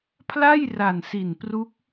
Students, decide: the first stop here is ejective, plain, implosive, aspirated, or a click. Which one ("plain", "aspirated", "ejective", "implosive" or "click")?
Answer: aspirated